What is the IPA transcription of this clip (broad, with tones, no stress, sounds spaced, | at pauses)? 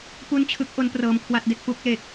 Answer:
p u˥˩ n t͡ɕʰ ɯ˦˥ k̚ ʔ o˦˥ n p r ɤː˧ m kʰ w a˥˩ t̚ d e˥˩ k̚ p u˥˩ k̚ l e˨˩ k̚